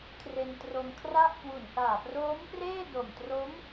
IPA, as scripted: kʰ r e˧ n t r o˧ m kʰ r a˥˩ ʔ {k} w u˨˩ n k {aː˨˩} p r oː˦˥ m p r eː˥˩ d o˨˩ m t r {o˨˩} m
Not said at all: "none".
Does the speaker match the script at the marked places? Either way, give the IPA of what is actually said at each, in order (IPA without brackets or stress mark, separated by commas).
k, aː˨˩, o˦˥